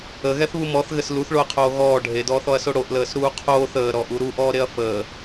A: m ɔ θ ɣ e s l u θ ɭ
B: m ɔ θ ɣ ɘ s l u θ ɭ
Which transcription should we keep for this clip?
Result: B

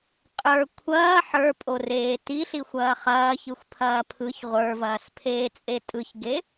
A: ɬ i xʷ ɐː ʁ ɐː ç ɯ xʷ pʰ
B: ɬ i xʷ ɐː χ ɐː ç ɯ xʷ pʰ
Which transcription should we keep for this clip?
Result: B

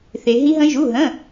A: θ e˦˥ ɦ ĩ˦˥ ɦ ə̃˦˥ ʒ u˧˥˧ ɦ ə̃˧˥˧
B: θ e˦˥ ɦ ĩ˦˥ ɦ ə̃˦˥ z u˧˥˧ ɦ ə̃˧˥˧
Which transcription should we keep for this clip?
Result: A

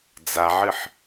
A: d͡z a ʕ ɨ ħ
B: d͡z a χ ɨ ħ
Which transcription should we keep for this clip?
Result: A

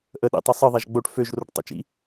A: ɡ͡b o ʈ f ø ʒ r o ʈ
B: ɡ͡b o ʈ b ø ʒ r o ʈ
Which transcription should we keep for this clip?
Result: A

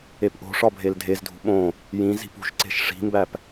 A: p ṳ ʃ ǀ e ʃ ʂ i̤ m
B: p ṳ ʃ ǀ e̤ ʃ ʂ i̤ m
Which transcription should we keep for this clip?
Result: B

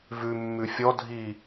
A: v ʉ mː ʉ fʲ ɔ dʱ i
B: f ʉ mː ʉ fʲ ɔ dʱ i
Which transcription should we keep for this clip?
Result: A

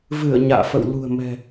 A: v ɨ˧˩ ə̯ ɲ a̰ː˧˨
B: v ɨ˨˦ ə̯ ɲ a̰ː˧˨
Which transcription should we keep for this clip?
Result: A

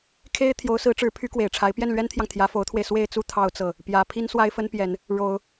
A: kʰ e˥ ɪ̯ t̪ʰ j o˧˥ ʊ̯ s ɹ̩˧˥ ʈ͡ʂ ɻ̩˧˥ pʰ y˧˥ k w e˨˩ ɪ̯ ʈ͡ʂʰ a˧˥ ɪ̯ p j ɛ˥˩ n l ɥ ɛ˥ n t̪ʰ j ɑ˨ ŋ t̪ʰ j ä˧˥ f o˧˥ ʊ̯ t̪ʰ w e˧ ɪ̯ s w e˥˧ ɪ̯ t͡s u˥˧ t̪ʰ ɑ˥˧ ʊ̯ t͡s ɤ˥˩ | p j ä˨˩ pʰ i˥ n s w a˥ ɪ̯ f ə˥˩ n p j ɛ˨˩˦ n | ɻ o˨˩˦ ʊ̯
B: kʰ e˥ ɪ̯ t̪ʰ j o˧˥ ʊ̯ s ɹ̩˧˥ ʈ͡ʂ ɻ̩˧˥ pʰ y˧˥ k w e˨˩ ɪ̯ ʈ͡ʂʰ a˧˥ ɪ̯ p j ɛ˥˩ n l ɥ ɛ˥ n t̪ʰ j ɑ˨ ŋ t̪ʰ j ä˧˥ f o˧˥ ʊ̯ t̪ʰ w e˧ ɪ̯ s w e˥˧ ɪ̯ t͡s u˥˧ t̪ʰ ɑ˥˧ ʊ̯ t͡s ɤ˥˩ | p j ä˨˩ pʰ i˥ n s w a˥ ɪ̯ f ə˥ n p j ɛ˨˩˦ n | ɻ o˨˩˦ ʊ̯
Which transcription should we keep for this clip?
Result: B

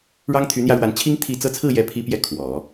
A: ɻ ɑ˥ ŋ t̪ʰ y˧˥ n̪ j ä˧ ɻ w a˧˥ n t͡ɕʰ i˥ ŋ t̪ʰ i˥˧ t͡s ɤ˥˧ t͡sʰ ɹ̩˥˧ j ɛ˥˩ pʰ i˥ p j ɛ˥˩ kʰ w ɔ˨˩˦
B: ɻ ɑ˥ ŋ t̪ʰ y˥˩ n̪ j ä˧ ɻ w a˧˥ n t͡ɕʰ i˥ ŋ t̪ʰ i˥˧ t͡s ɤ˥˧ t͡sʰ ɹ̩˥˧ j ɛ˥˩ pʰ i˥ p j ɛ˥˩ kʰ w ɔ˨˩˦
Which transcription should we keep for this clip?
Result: A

